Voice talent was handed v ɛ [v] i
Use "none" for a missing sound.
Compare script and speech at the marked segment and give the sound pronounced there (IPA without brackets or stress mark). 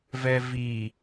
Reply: v